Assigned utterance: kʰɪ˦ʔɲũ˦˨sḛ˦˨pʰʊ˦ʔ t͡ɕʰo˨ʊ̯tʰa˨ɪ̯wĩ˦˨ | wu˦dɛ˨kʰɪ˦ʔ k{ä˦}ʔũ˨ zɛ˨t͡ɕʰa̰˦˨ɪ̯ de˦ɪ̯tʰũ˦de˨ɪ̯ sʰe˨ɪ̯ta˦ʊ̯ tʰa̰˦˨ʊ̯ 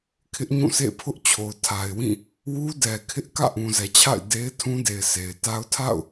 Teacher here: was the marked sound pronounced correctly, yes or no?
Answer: no